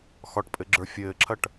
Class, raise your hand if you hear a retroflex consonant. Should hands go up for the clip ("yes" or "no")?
yes